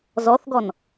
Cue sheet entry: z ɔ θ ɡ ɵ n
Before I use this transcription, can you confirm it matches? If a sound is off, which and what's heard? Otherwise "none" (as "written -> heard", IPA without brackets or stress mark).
ɵ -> ɔ